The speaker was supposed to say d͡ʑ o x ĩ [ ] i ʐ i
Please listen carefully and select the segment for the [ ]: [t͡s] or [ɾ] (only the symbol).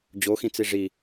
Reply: t͡s